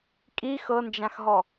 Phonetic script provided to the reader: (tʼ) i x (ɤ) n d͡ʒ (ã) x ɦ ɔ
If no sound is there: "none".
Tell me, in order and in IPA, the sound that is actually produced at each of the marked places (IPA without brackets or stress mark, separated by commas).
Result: kʼ, ɤ, ã